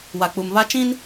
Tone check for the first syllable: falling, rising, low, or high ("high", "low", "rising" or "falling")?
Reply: low